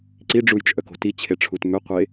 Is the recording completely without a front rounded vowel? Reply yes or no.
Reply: no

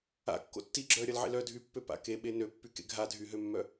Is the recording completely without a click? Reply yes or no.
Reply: no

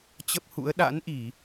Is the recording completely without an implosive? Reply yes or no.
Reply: no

